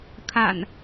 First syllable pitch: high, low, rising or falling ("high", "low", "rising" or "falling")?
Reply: low